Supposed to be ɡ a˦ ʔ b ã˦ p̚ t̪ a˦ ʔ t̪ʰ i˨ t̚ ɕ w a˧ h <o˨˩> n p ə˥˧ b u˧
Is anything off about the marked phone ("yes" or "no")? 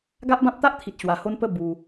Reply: yes